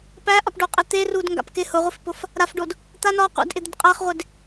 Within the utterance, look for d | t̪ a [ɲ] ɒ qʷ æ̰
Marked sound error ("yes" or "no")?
yes